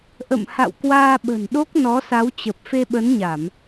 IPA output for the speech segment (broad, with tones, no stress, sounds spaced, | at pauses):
ʔ ə̰˧˨ m h a̰˧˨ w k w aː˧ ɓ ə̤˨˩ n ɗ o˦˥ k̚ n ɔ˨˦ s a˨˦ w t͡ɕ ə˨˩ p̚ f e˧ ɓ ə˨˦ n ɲ a˧˩˨ m